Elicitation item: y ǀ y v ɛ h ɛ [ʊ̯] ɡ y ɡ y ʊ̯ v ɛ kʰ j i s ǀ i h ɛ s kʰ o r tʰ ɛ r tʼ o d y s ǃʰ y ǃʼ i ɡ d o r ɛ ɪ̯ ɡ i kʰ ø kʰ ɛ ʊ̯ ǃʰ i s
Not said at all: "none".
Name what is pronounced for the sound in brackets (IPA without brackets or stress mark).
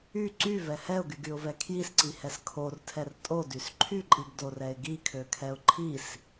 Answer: ʊ̯